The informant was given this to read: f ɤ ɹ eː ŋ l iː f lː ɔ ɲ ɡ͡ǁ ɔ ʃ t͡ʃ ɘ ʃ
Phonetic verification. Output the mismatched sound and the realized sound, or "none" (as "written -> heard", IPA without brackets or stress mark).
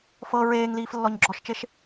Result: ɘ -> e